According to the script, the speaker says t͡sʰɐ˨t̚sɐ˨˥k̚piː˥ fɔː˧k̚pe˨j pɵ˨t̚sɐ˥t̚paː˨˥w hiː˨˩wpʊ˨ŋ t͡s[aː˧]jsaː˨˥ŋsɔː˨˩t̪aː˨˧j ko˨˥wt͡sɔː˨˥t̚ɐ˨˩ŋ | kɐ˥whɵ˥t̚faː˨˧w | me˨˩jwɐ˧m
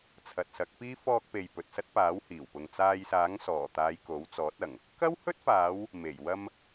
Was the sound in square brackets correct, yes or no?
yes